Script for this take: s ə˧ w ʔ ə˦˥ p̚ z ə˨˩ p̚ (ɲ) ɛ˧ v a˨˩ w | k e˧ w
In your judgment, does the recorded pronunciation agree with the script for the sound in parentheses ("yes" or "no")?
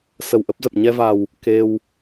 yes